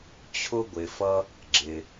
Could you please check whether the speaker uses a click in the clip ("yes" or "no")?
yes